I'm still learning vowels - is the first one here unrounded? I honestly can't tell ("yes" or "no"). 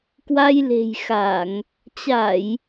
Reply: yes